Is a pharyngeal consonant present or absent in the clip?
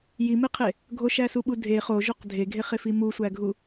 absent